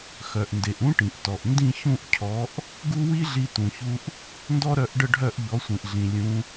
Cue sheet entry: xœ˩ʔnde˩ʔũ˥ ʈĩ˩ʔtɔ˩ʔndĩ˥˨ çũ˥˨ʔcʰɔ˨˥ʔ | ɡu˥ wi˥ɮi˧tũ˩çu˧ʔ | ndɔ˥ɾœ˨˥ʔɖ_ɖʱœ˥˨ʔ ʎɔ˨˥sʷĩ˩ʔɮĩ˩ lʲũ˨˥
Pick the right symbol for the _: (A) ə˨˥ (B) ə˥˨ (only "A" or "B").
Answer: B